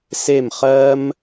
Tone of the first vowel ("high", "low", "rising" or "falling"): falling